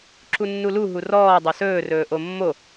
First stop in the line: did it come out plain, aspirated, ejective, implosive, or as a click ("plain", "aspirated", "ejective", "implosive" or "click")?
click